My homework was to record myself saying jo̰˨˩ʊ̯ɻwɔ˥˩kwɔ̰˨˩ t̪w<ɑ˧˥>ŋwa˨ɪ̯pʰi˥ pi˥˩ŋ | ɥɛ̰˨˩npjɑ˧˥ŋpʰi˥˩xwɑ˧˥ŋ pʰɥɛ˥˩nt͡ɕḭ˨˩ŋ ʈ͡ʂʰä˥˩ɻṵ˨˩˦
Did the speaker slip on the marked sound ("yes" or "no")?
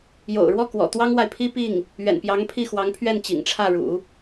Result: yes